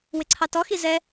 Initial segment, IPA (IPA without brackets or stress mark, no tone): w